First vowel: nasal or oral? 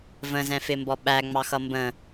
nasal